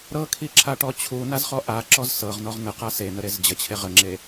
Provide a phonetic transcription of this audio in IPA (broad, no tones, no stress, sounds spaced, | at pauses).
ɾ ɤ kʰ i ǁʰ a ʈ ɔ t͡ɕʰ u n a z χ ɔ ʔ a ǁ ɔ z s ɤ ʁ n ɔ ʁ n ə q a s e n ə ɾ e z d͡ʑ ə t͡ɕʰ e ʁ ə ŋ͡ǁ e